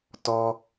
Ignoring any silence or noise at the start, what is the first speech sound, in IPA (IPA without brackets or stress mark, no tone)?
t